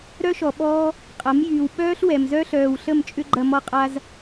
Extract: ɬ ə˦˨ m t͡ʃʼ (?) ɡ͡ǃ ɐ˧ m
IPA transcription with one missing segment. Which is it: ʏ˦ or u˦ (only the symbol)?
ʏ˦